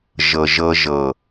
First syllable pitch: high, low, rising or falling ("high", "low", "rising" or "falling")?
low